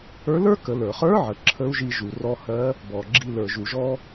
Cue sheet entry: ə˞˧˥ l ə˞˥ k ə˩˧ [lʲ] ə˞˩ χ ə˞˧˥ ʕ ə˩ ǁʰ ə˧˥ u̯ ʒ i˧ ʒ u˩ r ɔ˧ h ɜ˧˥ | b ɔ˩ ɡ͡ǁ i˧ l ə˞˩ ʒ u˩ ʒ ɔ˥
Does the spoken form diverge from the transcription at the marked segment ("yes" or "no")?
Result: yes